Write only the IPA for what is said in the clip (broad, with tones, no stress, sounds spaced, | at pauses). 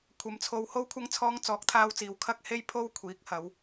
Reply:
kʷʰ ɐ˨˧ m t͡sʰ o˧ w h o˧ w kʷʰ ɐ˧ ŋ t͡sʰ ɔː˨˧ ŋ t͡s ɔː˨˥ k̚ t̪ʰ aː˧ w t͡s iː˨ w kʰ ɐ˥ k̚ h e˥ j pʰ o˥ w kʷʰ iː˨˥ k̚ h ɐ˨˧ w